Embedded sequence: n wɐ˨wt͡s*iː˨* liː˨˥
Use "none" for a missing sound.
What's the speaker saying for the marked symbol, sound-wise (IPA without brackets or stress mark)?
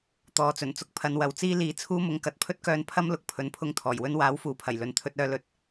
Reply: iː˥